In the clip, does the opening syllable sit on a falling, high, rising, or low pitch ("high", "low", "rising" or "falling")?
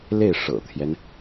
falling